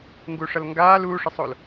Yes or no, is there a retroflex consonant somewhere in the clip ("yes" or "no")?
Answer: yes